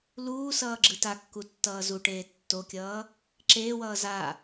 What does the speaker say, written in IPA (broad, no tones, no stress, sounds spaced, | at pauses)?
l uː s ʌː ɡ͡ǁ ɯ t a kː u tː ʌː z u ʈ eː tː o kʲ ʌː | ǁ eː w ʌː z a